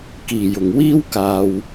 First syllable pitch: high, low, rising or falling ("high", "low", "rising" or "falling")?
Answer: low